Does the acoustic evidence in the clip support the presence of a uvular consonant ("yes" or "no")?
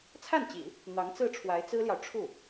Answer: no